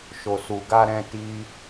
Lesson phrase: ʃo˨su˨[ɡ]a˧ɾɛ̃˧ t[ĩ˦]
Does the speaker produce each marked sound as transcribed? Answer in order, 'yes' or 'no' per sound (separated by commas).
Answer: yes, no